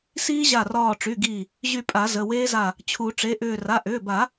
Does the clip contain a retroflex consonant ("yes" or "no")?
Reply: yes